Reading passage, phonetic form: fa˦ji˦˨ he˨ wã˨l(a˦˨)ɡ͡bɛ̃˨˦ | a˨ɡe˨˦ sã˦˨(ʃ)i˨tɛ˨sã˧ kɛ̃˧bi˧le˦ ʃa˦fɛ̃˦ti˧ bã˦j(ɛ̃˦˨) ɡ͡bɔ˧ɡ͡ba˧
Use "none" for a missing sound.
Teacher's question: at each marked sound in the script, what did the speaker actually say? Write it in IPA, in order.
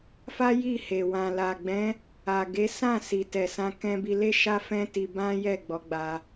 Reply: a˨, s, ɛ˦˨

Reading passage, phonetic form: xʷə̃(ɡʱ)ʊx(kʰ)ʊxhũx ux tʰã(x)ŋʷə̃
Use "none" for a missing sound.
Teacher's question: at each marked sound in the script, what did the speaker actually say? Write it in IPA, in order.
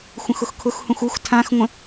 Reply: x, kʰ, x

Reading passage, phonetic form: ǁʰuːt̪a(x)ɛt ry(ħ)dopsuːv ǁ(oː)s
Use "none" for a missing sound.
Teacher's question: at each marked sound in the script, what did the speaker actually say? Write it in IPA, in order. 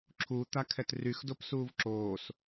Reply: kʰ, x, oː

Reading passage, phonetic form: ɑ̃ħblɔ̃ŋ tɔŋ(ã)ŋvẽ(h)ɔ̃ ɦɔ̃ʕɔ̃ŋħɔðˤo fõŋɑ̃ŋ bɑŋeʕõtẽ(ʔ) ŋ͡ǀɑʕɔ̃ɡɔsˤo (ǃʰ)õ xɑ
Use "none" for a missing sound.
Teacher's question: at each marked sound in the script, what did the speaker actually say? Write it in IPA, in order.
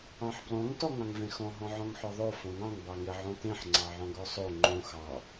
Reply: ɑ̃, x, ħ, ŋ͡ǃ

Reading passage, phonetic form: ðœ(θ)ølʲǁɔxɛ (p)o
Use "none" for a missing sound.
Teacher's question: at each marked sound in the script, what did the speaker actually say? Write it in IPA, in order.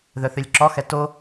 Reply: θ, t

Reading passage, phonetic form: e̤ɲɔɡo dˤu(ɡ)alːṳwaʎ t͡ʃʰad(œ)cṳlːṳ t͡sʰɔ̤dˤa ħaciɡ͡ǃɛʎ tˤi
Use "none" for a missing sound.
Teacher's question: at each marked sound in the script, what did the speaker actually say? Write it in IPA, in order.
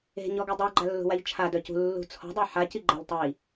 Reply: ɡ͡ǃ, œ

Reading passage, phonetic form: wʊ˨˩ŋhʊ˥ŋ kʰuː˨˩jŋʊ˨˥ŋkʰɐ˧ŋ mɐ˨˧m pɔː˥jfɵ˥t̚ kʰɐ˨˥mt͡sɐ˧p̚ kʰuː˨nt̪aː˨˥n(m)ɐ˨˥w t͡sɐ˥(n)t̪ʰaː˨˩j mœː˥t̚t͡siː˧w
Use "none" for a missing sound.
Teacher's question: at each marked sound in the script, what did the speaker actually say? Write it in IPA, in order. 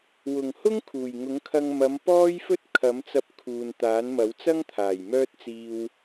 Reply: m, ŋ

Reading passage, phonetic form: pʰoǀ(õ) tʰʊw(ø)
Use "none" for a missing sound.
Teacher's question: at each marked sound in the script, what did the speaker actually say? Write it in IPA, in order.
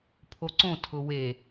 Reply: õ, e

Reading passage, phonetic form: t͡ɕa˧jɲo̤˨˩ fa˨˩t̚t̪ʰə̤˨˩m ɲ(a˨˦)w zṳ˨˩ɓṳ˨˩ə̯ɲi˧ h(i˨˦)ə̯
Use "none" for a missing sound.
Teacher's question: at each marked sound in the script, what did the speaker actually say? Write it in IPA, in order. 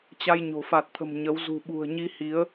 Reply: ə˨˦, i˨˦

